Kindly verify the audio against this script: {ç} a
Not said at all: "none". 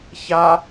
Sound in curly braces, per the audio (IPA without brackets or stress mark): ç